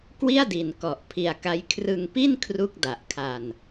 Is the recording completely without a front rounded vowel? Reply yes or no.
yes